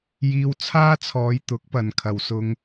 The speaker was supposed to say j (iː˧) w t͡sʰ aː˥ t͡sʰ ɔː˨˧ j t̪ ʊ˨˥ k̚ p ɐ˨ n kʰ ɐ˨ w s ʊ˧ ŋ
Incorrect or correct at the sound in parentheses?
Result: correct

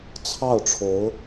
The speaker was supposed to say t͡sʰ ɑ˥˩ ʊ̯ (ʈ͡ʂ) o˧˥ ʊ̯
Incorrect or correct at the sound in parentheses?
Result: incorrect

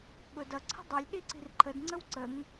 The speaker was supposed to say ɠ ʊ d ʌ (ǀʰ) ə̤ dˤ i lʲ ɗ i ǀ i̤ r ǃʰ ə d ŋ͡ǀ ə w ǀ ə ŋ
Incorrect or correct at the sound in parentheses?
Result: correct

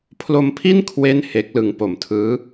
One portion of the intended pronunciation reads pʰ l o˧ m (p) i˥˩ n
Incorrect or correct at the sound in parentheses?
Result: incorrect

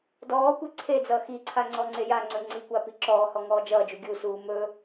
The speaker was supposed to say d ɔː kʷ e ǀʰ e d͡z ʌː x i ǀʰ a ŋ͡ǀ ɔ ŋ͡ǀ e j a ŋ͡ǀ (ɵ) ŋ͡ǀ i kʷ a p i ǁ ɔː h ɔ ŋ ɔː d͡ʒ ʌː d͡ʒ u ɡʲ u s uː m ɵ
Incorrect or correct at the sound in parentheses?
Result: correct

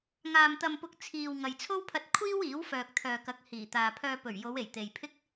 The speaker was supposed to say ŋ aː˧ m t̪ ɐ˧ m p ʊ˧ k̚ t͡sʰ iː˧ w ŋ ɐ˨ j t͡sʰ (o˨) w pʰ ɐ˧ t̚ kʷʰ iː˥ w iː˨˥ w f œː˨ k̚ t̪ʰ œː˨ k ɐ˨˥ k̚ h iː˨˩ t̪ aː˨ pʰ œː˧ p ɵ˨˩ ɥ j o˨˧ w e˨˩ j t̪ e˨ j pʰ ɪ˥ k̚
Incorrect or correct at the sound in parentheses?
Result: incorrect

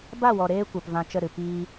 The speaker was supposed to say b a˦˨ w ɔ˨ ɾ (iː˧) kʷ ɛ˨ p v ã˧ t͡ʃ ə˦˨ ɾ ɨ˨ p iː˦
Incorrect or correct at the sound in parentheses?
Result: incorrect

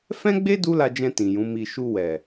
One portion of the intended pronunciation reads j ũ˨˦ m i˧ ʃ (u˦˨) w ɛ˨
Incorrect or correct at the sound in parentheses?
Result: incorrect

